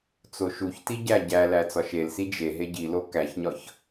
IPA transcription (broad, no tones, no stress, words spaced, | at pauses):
t͡soʃuçti ɟæɟælæ t͡sɒʃelsi d͡ʒe ɦeɟilo kæçɲɒç